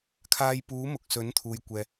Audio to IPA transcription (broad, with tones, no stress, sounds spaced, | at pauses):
kʰ aː˧ j p uː˨˥ m ʊ˨ k̚ s ɵ˨˥ n t̪ʰ uː˨ j kʷ ɛː˨